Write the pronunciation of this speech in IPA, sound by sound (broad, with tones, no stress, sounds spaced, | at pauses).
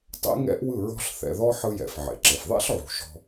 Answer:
tˤ ḛ˦ ŋ ɛ̰˦ ʔ w ɯ˦˨ ɹ ɔ̤˦ ɬ θ ɛ̰˨ ð ɔ˦ ħ ɯ˦ j ɛ̰˨ f ʕ ḛ˨ ǁ e˨ f ðˤ ɛ̰˦ ɬ ʕ ṳ˨ ʃ ɔ̤˦